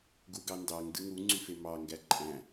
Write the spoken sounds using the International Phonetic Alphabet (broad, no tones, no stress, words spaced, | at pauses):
ɡuɡɑndɑŋ dɯŋuŋ͡ǀyfe mɑŋɡæ ǃʼæ̃